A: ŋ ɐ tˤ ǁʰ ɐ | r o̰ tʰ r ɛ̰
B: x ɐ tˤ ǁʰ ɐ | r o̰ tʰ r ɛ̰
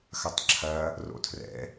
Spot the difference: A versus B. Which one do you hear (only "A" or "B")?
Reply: B